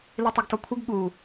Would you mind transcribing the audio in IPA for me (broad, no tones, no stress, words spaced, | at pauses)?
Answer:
litˤʊɡtɔkʷʰɪɡ ɠu